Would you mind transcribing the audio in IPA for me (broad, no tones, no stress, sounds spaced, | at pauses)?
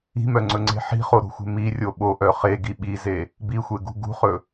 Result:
i̤ m œ ŋ͡ǀ ɵ ŋ͡ǀ e̤ ħ i̤ χ o ɾ o̤ xʷ e̤ m i rʲ o ɓ o ʔ œ χ e ɡ i ɓ i z e | b i xʷ e ɡ ṳ ɡ ṳ χ ɵ